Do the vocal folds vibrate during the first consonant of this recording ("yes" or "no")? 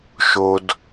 no